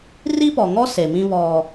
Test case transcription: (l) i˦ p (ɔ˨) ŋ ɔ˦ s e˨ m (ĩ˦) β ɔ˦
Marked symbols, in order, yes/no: no, yes, yes

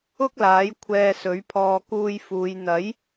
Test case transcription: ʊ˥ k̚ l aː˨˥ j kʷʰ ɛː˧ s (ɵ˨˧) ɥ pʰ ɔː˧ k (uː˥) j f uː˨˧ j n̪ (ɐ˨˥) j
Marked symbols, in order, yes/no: no, no, yes

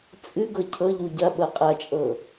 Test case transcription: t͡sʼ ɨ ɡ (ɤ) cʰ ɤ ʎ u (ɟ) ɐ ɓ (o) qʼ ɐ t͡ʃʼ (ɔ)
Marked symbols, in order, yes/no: yes, yes, no, no

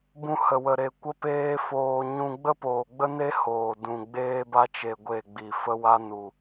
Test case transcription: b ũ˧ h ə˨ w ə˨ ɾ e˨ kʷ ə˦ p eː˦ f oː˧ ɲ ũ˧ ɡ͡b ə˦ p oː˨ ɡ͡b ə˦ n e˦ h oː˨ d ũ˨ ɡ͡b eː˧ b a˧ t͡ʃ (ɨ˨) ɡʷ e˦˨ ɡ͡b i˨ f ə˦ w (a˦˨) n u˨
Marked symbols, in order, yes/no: no, no

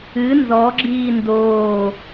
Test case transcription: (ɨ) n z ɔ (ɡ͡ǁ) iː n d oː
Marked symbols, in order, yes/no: yes, yes

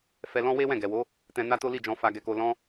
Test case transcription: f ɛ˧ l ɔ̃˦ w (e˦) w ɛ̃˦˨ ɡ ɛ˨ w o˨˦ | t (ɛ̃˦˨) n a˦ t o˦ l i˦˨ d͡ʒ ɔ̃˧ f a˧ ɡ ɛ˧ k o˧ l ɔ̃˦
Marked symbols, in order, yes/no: yes, no

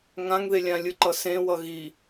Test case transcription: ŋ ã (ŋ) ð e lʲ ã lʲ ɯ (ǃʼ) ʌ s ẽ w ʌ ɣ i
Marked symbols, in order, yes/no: yes, no

